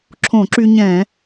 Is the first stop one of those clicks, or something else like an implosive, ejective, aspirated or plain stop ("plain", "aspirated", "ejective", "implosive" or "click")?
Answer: click